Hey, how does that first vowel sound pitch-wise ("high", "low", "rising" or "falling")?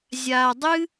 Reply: low